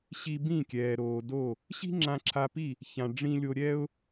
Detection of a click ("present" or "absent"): present